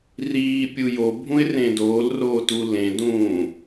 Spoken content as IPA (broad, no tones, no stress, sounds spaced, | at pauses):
r iː pʲ u j o bʱ ũ ɪ̯ r ẽ d oː l r oː t u l ẽ d ũː